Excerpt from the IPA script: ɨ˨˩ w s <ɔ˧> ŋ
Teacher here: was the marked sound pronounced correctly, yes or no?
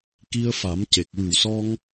yes